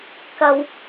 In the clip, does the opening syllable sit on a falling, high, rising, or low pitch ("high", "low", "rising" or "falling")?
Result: low